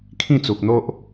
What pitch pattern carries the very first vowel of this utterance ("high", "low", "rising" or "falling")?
falling